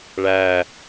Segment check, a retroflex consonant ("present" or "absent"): present